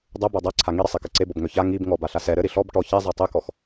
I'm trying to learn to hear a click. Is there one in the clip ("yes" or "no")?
yes